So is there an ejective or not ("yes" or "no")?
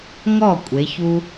yes